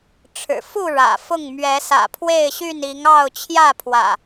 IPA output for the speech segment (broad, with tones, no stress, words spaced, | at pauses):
ʈ͡ʂʰɻ̩˨˩ fu˥˨ ɻä̰˨˩fʊ˥˨ŋ mɥɛ˨˦sä̰˨˩pʰwe˥˨ɪ̯ɕy˥˨n i˨˦ŋɑ˥˨ʊ̯ t͡ɕʰjä˥˨pʰwä̰˨˩